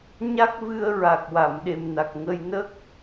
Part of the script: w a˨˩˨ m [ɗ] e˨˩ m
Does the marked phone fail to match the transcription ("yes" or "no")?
no